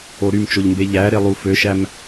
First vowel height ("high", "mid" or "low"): mid